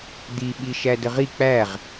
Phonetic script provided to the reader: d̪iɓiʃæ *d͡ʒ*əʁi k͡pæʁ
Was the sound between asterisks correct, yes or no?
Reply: no